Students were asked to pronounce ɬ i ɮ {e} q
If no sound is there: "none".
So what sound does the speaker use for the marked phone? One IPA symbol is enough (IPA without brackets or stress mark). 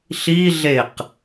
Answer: e